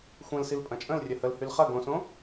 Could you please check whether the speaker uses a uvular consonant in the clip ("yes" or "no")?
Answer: yes